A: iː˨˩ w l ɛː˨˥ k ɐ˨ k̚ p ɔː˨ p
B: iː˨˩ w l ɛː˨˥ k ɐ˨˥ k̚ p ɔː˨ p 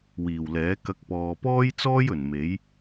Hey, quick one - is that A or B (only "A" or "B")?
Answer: B